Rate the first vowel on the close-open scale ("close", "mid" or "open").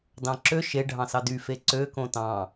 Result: open